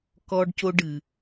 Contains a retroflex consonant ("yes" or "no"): yes